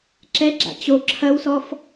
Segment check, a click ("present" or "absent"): present